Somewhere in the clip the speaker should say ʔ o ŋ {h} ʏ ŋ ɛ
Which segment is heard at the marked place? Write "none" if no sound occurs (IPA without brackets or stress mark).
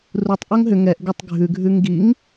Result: ɦ